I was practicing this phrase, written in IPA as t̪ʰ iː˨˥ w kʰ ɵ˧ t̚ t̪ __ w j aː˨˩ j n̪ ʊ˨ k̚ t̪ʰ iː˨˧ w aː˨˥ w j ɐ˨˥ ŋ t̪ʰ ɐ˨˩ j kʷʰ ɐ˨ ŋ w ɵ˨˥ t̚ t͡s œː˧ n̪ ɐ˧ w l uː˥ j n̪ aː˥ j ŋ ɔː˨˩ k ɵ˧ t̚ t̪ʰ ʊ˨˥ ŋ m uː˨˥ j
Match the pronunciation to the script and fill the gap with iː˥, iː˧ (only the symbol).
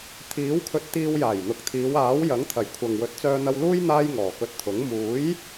iː˧